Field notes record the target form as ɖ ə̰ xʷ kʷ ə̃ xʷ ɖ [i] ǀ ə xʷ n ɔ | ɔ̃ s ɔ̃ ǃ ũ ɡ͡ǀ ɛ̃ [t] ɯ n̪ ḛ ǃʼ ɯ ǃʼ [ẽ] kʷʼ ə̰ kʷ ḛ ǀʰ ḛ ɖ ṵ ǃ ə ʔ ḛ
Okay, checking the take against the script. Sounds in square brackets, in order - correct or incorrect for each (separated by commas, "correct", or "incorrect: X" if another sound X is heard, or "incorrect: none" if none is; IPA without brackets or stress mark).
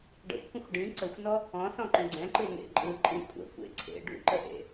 incorrect: ĩ, incorrect: ǃ, incorrect: ĩ